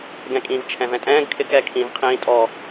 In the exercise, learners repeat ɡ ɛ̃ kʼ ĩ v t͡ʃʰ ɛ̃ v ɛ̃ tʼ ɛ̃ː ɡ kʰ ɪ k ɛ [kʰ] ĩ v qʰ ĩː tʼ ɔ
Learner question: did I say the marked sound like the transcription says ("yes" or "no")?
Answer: yes